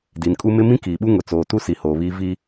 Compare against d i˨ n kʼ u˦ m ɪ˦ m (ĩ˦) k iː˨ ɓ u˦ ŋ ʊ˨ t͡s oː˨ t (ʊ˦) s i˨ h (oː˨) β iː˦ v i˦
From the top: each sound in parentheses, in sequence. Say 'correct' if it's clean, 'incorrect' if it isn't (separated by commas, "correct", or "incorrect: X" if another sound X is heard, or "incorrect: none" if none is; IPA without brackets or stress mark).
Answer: correct, incorrect: u˦, correct